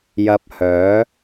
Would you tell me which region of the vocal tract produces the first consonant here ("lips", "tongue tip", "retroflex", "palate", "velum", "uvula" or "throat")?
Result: palate